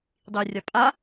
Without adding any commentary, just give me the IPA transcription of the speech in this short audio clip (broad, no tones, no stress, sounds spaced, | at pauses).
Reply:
dˤ i rʲ a pʼ a